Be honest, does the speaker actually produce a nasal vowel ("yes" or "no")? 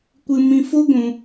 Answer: yes